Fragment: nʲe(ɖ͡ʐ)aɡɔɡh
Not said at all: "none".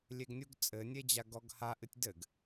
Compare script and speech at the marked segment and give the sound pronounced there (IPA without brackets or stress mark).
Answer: d͡ʑ